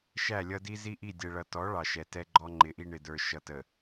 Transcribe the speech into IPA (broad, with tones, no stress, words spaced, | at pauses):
ʃæ˦˨lʲʌ˦di˦ zi˦ʔi˦˨dʲɛ˨ɭʌ˨ tɔ˨˦ ɭɑ˨ʃɛ˨ tɛ˦ɡ͡ǃɔ˦ŋ͡ǃɪ˨˦ʔi˦ ɳɪ˨də˞˨ ʃʌ˨tə˨